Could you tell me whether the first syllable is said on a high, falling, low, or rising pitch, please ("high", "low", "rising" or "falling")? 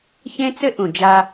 high